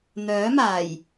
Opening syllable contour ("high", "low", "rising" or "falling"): rising